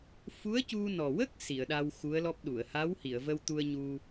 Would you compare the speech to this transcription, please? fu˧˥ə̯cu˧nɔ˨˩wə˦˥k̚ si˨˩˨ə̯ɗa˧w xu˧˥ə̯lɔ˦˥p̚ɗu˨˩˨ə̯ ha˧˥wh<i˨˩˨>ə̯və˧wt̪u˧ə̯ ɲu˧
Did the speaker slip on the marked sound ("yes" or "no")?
no